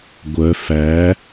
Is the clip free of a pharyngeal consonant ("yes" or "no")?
yes